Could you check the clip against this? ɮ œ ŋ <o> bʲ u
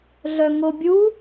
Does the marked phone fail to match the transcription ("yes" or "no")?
no